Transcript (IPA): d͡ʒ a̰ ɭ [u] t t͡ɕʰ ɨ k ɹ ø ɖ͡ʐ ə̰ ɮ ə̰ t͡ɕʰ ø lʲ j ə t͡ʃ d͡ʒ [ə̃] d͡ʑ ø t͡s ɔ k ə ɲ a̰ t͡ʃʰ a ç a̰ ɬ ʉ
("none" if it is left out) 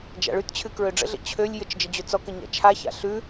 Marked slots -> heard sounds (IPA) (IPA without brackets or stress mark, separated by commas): ʉ, ə